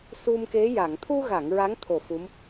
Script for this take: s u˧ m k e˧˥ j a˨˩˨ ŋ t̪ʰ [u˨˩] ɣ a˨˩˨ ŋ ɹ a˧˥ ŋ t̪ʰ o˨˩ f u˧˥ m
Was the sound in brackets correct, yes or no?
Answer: no